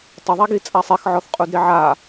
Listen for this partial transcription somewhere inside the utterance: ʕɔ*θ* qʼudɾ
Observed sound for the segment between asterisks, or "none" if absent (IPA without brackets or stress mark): θ